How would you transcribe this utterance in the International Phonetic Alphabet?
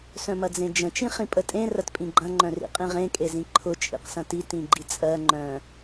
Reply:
s œ̃ m ɐ d͡z ẽ d͡ʒ ə̃ t͡ʃ ĩ χ ĩ pʼ ə tʼ ẽ r ɐ t pʼ ĩ ɡ͡ǃ ɐ̃ ŋ͡ǃ œ̃ r ḭ qʼ ĩ ʁ ẽ kʼ e z ĩ ǃʰ ʊ t͡ʃʼ ḭ q s ɐ̃ t i t ĩ ɡ͡ǃ i t͡sʼ ɜ ŋ͡ǃ œ̃

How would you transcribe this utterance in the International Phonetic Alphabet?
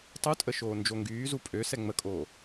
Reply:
tˤ u tʼ ə ʃ oː n d͡ʒ o ŋ ɡ yː z u pʼ ø s ɛ ŋ͡m ə kʼ oː

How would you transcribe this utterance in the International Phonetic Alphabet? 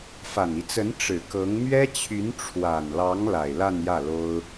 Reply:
f a˨˩ n i˦ t͡s ə˧˥ n ʈ͡ʂ ɻ̩˨˩ k ɤ˧˥ ŋ m ɥ ɛ˥ t͡ɕʰ y˧˥ n ʈ͡ʂʰ w a˨˩ n l ɑ˧˥ ŋ l a˨˩ ɪ̯ l a˥˧ n j ä˥˩ l o˥ ʊ̯

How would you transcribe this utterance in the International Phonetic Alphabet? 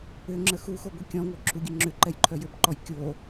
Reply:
ʏ ŋ͡ǁ ə x u x o ɡʷ i kʲ ɔ̃ ŋʷ œ ǁʰ u ɡʲ ə ŋ͡ǁ ʏ ǃ ɛ j ǃʰ œ j ʏ b ǃ ɔ j kʲ o

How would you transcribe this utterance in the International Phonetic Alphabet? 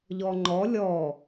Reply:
ʎ ɔ ŋ͡ǃ ɔ lʲ ɔ

